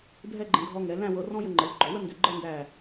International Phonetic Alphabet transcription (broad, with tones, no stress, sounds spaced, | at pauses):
dʱ ɛ˥˧ ɡ͡ǃ ɛ̃˧ ɡʱ ɔ˧ ŋ ɛ˩˧ l æ̃˥˧ w ɤ˧ r ɔ̃˥ j ə˧ ŋ͡ǃ ə˩˧ l ɡ͡ǃ ɔ˩˧ w ə˥ n d ʏ˧˩ ɡ͡ǃ ɤ˥˧ n d æ˧˩